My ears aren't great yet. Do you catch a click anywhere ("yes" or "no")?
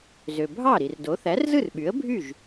no